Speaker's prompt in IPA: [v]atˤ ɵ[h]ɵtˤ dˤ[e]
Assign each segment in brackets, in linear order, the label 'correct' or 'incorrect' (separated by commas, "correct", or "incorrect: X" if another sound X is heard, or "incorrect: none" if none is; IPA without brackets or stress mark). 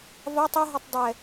correct, incorrect: ɦ, incorrect: ɛ